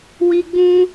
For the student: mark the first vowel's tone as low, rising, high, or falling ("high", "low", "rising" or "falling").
high